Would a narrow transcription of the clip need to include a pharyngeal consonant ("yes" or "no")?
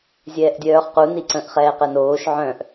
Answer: yes